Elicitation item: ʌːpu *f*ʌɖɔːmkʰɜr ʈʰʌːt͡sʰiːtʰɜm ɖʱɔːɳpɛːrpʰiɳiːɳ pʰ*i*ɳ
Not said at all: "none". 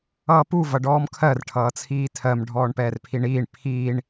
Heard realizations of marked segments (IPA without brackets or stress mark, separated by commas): v, iː